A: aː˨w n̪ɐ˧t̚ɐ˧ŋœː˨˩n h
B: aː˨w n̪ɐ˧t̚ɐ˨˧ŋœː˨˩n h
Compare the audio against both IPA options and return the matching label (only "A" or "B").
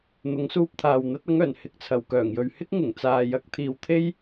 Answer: B